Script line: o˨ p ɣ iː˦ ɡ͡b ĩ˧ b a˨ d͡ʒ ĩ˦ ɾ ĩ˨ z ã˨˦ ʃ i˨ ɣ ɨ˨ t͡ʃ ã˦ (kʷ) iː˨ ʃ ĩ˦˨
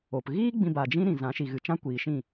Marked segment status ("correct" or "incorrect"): correct